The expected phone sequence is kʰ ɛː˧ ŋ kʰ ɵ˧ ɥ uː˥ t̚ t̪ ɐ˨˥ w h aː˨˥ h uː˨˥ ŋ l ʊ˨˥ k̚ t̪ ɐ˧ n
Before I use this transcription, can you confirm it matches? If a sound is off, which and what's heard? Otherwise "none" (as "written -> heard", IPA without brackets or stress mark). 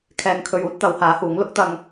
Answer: n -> ŋ